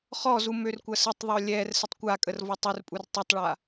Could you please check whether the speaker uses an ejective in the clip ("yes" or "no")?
yes